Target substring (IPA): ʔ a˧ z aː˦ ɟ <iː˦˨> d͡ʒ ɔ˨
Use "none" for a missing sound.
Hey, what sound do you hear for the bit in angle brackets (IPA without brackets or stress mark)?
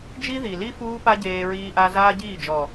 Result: iː˦˨